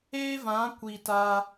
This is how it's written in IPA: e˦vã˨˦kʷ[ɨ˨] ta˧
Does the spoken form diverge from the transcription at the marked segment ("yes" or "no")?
yes